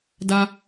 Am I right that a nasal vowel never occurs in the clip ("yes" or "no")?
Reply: yes